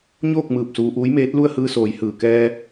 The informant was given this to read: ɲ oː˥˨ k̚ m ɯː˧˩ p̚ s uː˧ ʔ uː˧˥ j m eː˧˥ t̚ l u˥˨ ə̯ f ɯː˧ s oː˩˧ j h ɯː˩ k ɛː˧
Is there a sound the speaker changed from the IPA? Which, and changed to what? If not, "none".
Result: f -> h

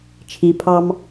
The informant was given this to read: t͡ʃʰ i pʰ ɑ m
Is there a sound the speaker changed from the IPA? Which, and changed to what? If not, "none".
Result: none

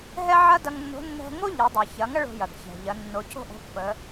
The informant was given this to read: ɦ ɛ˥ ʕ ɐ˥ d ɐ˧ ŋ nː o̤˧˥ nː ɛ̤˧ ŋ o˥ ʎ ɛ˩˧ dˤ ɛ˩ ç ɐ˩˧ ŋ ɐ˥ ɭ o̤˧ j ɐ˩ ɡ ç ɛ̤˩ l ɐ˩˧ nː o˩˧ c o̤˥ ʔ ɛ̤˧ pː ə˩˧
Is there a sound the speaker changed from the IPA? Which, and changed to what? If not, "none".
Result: l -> ʎ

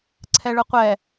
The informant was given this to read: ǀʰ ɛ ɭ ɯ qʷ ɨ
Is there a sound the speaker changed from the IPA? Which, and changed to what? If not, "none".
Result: ɨ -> ɛ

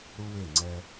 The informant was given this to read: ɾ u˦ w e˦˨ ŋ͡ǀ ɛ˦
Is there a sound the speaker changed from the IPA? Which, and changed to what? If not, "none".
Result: none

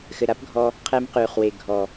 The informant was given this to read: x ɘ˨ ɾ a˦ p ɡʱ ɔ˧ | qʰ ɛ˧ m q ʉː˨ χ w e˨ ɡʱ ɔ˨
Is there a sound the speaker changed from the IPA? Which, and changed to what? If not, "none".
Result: none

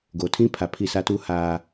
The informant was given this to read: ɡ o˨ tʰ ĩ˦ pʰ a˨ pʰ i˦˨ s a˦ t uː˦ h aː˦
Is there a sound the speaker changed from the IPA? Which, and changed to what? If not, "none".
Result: none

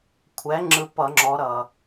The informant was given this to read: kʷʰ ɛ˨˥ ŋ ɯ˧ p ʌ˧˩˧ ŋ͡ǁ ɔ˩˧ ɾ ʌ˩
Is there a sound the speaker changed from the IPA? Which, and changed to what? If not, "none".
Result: ŋ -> ŋ͡ǁ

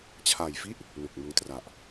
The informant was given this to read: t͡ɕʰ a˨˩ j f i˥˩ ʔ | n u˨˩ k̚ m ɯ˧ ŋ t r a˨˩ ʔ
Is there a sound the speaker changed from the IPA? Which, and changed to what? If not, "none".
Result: none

